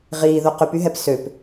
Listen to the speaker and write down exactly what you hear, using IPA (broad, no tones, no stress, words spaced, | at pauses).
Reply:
ʁiːðo qypyɦɛp søp